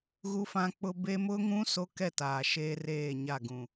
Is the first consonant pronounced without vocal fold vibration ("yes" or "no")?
no